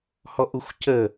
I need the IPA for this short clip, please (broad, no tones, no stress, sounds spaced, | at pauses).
h ɔ ʔ u xʷ c ə